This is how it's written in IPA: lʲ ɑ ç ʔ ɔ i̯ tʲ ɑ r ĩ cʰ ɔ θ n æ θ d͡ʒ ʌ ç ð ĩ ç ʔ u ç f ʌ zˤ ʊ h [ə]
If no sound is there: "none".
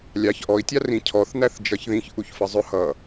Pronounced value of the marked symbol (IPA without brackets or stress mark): ʌ